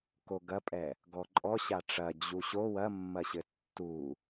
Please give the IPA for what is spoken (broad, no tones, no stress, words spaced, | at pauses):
koɡɐpʼɛ | ɡɔǃʼɔ ɕaʈ͡ʂɐ d͡ʑuɕo wɐmːɐɕɘ tːu